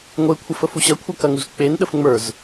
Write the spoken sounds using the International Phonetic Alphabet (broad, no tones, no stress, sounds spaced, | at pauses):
ŋʷ e kʷʰ ɐ f ə f u ɕ ɐ kʷʰ ɐ k ɐ ŋ u z k͡p e n ɗ ə f ŋ͡m ə˞ z